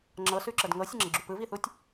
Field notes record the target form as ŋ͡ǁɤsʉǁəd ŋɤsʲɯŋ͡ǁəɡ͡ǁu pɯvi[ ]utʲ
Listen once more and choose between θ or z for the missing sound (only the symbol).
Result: θ